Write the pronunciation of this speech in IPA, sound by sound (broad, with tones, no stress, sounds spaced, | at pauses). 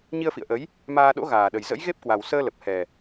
ɲ i˧ ə̯ f ḭ˧˨ ə̯ ʔ ə˨˦ j | m aː˧ ɗ o̰˧˥ ɣ aː˨˩ ɗ ə˨˩ j z ə̰˧˥ j ɣ e˦˥ p̚ k w a˨˩ w s əː˧ l ə˨˩ p̚ h ɛ˨˩